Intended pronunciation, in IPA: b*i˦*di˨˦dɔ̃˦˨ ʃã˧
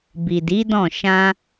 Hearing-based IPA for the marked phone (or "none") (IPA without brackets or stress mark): i˨